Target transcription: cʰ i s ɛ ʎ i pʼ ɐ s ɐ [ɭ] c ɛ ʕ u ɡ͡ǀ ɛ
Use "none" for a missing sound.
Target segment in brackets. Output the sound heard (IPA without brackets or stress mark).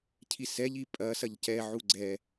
ʎ